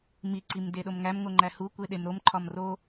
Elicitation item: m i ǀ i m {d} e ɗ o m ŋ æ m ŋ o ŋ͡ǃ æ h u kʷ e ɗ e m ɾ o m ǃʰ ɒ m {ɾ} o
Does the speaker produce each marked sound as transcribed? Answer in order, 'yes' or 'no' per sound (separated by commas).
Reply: yes, no